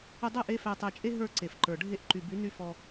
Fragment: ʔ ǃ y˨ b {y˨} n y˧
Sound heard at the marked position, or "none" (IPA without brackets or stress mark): y˨˦